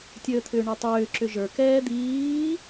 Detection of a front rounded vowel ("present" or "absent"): present